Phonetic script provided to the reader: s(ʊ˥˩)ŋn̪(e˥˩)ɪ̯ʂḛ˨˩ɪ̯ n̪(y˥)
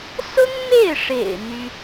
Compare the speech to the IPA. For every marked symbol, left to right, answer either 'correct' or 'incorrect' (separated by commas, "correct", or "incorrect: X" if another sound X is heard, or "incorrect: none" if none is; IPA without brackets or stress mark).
incorrect: ʊ˥, correct, correct